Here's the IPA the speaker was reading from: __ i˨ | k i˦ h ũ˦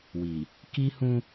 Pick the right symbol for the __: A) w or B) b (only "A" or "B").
A